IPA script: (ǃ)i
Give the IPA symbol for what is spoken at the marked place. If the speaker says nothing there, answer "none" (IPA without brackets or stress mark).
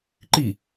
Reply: ǃ